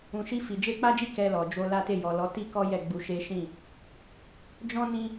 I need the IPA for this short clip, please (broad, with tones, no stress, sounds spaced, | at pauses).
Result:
ũ˨ ʃ i˧ f i˨ d͡ʒ e˧ k͡p a˦ d͡ʒ i˦ k ɛ˧ l ɔ˨ d͡ʒ o˧ l a˦ t e˦˨ j ɔ˨ l ɔ˨˦ t i˦ k ɔ˦ j ɛ˦˨ ɡ͡b u˧ ʃ e˦ ʃ ĩ˦˨ | d͡ʒ ɔ̃˦ n ĩ˧